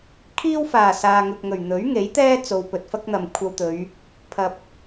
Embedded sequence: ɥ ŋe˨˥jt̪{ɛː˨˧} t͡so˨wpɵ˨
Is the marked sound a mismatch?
yes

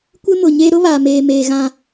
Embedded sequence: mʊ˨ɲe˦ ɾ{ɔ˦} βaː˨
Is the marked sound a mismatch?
yes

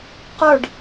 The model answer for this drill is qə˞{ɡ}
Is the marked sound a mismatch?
yes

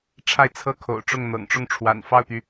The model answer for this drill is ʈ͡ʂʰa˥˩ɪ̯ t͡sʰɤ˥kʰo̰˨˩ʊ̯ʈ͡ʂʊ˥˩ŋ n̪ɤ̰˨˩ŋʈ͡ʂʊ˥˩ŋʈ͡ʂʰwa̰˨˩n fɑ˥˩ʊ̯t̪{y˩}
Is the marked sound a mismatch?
no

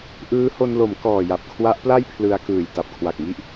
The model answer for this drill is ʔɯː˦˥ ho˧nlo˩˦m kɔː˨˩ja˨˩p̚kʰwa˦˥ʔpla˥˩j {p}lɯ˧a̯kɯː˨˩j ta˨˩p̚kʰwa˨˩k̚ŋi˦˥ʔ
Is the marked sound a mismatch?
yes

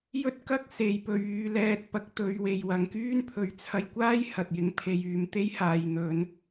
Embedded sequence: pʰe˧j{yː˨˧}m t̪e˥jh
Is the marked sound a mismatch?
no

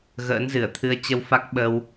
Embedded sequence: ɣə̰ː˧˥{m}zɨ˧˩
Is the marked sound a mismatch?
yes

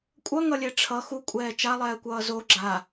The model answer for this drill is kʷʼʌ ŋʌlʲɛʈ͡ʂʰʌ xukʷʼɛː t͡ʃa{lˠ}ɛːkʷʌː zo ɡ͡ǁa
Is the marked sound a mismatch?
no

